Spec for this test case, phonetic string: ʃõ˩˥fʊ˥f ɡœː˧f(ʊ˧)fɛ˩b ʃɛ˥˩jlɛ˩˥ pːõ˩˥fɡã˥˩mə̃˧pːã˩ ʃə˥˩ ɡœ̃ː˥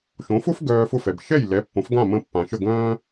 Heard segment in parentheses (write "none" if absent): ʊ˥˩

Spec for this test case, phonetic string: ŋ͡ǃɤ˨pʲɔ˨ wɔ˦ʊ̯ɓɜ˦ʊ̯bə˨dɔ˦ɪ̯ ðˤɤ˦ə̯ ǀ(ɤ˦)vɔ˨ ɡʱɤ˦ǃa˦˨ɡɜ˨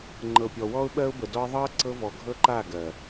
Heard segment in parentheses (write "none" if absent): ɤ˦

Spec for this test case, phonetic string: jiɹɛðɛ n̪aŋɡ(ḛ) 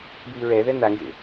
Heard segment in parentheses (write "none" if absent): ḛ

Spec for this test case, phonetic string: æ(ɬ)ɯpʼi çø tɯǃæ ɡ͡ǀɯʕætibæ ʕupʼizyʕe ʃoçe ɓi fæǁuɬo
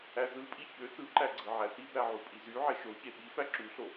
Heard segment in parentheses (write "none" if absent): z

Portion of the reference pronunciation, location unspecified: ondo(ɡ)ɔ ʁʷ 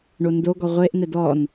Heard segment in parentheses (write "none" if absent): ɡ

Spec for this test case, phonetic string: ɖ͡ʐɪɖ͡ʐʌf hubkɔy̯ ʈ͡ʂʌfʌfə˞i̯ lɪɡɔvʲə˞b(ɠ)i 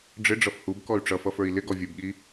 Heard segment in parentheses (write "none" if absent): ɠ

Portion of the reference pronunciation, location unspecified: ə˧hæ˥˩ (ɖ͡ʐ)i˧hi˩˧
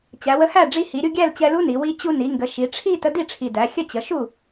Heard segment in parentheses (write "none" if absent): ɖ͡ʐ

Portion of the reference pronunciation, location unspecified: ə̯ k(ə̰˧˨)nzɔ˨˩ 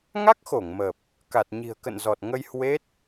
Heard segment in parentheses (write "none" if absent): ə̰˧˨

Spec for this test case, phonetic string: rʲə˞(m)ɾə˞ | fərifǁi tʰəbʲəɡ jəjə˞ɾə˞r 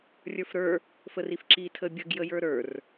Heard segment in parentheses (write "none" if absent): f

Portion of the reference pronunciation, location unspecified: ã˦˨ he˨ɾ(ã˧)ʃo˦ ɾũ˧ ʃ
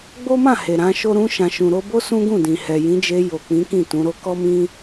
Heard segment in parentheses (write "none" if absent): ã˨˦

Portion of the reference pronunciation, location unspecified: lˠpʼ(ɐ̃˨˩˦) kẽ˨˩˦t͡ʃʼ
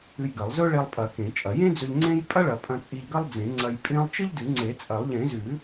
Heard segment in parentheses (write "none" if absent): ɐ˨˩˦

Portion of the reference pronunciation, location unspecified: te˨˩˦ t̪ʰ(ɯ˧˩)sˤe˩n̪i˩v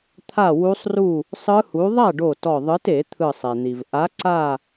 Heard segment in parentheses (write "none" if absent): ɯ˧˩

